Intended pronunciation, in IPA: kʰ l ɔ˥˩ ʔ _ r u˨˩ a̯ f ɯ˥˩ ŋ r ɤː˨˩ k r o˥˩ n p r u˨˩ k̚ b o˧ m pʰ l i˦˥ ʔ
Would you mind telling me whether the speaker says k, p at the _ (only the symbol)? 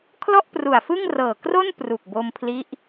p